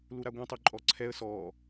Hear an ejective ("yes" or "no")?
yes